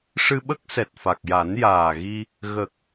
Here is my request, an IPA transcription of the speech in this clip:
ʂ ɨ˧ ɓ ə˦˥ k̚ s ɛ˨˩ t̚ f a˨˩ k̚ j a˨˩˦ n j aː˨˩ ɣ i˧ | ɣ ə˨˩ k̚

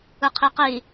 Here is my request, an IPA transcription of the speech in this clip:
ɯ qʰ i q i

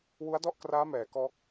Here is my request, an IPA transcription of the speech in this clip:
w u˦˥ a̯ d ɔ˥˩ ʔ k r aː˦˥ m ɛː˩˦ k ɔː˦˥ k̚

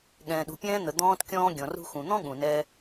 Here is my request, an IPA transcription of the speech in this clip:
ɠ ɛ̃ː˩ ɗ ṳ˩ pʲ ɛ̃ː˧ n̪ ə˩ d̪ ɔ̃ː˧ t kʲ ɔ̃ː˧ ɡʲ ɔ̃˩ r ṳ˧ x ũ˩ n̪ ɔ̃˥ ɠ ũ˩ n ɛː˧

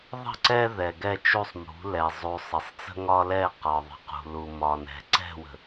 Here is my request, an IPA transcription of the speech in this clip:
ðˤ ə̤˦˨ ǀ ɛ˦ ð ɛ˨ ɡ ɛ˦˨ t͡ʃ u˦˨ sˤ m ṳ˨˦ l ɛ˨ zˤ u˨ sˤ ə˨ sˤ t͡s ə̤˦ ŋ ɒ˦ l ɛ˦˨ q ɒ˨ ðˤ ə̤˨ q ṳ˨ l u˨ m ɒ˨ n ɛ̤˨ ǀ ɛ̤˦˨ w ə̤˨

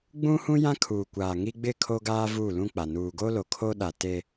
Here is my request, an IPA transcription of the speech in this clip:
ɡ͡b ũ˦ h ũ˦ j ã˦ kʰ uː˨ kʷ aː˨ ŋ i˦ ɡ͡b ɪ˦˨ kʰ o˦ ɡ aː˦ v uː˦˨ l ũ˦ k͡p a˨ n uː˨ ɡ o˦ l o˨ kʰ o˦ ɗ a˨ t e˦

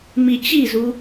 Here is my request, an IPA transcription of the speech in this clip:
m i t͡ɕ i z u

